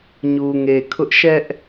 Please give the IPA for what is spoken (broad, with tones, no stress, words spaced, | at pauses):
ɲu˨ŋe˨kʰʊ˦ʔ ʃɛ˦ʔ